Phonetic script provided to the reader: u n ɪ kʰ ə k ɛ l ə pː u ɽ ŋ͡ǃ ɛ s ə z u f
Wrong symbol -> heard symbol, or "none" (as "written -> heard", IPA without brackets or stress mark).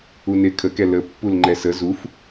ɽ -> l